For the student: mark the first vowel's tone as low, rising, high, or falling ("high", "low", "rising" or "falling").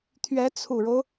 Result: rising